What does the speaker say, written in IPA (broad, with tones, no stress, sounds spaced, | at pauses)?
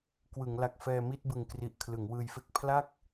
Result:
k w ɯ˩˦ ŋ l a˨˩ k̚ f ɛː˧ m i˥˩ t̚ b ɯ˧ ŋ k r i˨˩ ʔ kʰ l ɯ˩˦ ŋ w ɯː˧ j f e˥˩ k̚ pʰ l a˥˩ k̚